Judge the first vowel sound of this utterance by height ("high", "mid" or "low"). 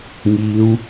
high